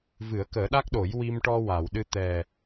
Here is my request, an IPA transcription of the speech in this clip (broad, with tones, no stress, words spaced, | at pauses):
vɨ˨˩˦ə̯kəː˨˩˦ɗa˦˥k̚ɗo˨˩˦j wi˧mʈɔ˧wa˨˩˨w ɗɨ˧t̪ɛ˨˩